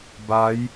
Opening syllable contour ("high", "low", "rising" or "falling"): rising